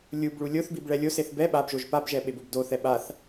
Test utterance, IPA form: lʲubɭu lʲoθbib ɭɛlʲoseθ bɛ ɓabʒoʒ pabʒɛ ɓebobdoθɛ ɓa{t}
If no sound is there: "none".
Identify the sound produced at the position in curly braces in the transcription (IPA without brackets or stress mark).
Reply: θ